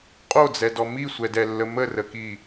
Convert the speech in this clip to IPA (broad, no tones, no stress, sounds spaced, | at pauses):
qʼ o d͡z ɛ d ɔ m i sʷ ɛ d ɛ lː ə m ə r ə k i